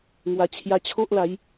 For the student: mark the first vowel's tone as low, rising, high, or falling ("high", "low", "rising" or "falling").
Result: low